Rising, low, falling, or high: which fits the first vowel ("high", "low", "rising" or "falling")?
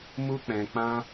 high